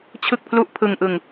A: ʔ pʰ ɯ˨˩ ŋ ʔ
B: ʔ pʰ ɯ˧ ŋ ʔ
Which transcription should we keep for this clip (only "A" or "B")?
B